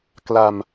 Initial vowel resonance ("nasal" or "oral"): oral